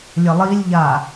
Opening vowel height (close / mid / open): mid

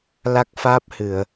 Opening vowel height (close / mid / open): open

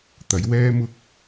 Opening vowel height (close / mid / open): open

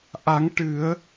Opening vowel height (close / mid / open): open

